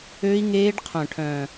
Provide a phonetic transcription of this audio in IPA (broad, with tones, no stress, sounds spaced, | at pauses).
ø˦˥ i̯ ŋ eː˦˥ ɖ qʰ œ̃˨˩ ʈʰ œ̃ː˨˩